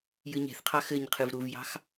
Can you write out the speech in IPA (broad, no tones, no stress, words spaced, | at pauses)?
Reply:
jɨɲe̤θqʰɑ xɘɲ qʰɨvɾuvjɑ̤x